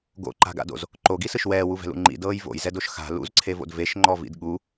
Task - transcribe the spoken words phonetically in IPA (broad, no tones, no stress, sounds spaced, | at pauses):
ɡ o̰ ǃ a̤ ɡ a̰ d o̰ z | ǃ o ɡ i s ɯ ʃ w ɛː w u v ɛ̤ l ṵ ŋ͡ǃ ḭ d ɤː j v o̰ j z ɛ d o ʃ x a̤ l ṵ z ǀʰ e v o̰ d v e ʃ ŋ͡ǃ ɔ v ḭ d ɠ u